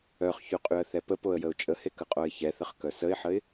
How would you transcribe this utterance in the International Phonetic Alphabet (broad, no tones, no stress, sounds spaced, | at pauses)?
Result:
œ χ ç y qʼ y ə̯ θ ɛ p ə p o ə̯ j ə ʊ̯ t͡ʃʼ ə h e k ə qʼ o ɪ̯ ç ɛ θ ə χ k œ s ə ɪ̯ ħ ə ɪ̯